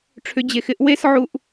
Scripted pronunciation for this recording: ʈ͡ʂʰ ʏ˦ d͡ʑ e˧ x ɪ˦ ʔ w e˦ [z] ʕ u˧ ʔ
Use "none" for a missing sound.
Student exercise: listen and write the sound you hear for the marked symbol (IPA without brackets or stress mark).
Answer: s